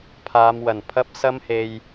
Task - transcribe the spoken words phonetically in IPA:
pʰ aː˨˧ m w ɐ˨˩ n pʰ ɐ˥ p̚ s ɐ˥ m h e˧ j

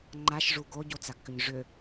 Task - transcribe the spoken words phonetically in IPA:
ŋ͡ǃ a ʃ ʐ u ɡ o ɟ o t͡s a ɡ k ʏ ɲ ʐ ʏ

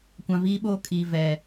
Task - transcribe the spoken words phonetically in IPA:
kʷ ã˨ v iː˦ ɓ oː˦ kʼ iː˨ v ɛ˨

